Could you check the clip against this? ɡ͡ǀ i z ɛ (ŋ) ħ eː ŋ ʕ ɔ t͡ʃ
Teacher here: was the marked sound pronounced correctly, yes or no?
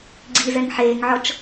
yes